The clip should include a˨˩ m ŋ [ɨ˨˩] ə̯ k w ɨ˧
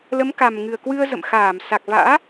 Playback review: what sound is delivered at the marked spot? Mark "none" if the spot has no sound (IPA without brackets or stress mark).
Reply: ɨ˨˩